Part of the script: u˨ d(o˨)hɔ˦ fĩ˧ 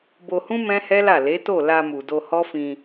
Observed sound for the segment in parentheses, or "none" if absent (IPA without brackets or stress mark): o˧